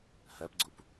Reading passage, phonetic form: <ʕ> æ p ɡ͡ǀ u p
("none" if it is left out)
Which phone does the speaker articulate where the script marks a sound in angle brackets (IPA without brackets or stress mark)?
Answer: h